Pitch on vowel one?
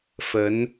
rising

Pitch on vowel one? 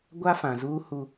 high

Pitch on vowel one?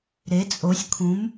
rising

